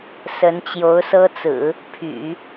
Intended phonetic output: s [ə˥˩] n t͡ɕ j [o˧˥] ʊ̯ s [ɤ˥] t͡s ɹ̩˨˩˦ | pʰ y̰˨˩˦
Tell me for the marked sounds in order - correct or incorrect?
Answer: incorrect: ə˧˥, correct, correct

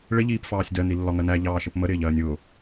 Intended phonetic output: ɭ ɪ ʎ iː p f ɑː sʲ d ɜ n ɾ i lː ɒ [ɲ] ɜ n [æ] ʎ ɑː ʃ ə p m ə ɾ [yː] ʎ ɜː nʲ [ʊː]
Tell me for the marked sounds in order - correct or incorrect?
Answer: incorrect: ŋ, correct, incorrect: ɪː, correct

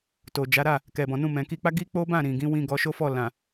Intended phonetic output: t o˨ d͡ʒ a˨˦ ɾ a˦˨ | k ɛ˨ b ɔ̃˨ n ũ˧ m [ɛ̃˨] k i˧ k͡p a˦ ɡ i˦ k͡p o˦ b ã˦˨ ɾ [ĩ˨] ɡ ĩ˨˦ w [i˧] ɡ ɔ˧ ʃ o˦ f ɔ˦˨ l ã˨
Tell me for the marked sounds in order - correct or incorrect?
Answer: correct, correct, incorrect: ĩ˧

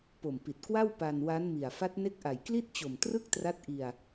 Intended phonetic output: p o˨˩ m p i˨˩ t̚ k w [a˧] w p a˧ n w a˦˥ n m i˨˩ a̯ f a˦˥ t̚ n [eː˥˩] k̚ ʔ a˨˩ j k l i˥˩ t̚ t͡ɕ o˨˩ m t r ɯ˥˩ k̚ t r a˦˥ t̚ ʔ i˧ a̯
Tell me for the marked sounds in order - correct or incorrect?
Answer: incorrect: a˥˩, incorrect: e˥˩

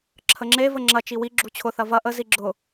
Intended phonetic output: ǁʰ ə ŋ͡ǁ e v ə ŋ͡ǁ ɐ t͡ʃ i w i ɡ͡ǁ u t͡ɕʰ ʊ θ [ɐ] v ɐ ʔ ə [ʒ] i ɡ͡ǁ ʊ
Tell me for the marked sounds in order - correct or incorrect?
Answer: correct, incorrect: z

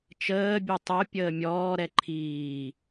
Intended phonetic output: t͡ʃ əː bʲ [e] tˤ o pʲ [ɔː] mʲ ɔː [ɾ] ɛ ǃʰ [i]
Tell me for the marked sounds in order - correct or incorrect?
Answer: incorrect: ø, incorrect: əː, correct, incorrect: iː

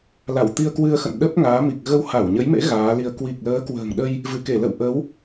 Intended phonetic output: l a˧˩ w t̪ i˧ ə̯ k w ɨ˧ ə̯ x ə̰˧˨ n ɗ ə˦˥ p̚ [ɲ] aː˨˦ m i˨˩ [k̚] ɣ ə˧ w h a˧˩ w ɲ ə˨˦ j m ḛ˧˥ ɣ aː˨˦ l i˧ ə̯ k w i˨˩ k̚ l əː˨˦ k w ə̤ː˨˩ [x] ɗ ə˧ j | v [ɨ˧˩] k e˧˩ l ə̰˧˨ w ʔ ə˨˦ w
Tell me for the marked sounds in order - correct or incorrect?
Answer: incorrect: ŋ, correct, incorrect: ŋ, correct

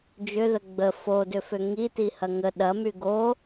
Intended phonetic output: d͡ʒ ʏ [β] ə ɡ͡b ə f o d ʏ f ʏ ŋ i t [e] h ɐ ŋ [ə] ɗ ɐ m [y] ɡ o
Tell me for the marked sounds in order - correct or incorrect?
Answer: incorrect: ð, incorrect: i, correct, correct

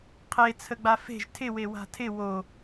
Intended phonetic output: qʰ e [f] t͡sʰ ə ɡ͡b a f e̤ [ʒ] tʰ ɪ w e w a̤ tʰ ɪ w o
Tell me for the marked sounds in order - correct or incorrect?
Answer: incorrect: none, correct

